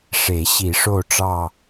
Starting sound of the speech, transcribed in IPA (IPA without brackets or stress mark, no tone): ʂ